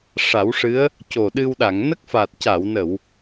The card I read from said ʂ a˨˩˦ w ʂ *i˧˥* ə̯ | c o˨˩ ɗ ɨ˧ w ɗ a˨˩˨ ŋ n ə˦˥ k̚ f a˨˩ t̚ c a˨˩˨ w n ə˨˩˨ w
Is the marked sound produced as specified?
no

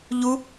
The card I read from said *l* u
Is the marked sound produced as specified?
no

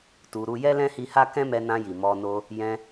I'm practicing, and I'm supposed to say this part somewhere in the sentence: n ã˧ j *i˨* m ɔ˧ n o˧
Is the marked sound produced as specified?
yes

